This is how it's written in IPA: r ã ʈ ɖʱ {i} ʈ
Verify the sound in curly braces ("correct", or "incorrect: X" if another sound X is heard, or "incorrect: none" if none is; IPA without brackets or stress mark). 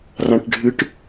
incorrect: ɨ